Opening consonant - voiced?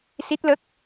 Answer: no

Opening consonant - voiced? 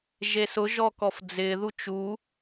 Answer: yes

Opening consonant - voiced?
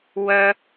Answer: yes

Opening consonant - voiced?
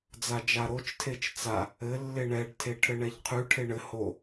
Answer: yes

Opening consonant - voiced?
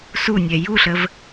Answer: no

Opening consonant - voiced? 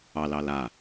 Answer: yes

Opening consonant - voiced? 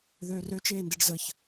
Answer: yes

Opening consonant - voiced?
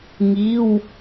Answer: yes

